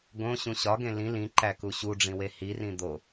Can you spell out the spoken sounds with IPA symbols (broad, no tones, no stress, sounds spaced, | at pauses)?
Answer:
ɡ õ ɕ ũ ɕ ɒ ɡ ẽ l ĩ l ĩ ǃ æ k u ɕ u ɖ͡ʐ ĩ w e h i r ĩ d̪ o